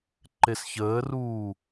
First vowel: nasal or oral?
oral